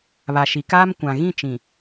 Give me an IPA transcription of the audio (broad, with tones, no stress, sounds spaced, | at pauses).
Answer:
β a˨ ʃ i˨ k aː˦ m kʷ ã˨ ɣ ĩ˦˨ t͡ʃ ĩ˨